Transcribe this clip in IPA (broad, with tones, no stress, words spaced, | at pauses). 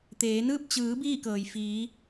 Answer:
t̪eː˩˧nɯː˥˨p̚ t͡ɕɯː˩˧ biː˥˨kɤː˩jfiː˩˧